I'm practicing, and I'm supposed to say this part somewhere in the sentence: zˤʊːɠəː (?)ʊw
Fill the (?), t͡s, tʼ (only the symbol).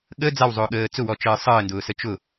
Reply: t͡s